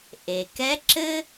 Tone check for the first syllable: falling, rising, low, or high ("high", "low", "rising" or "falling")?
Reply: low